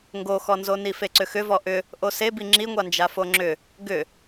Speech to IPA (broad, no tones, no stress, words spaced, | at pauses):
ŋɡoxɔnzoni feǀʏxʏvɔ ʔʏ | ʔosebi ŋ͡ǁiŋʷand͡ʒa foŋ͡ǁʏ | ɡʏ